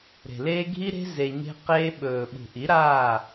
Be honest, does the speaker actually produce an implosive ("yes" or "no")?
yes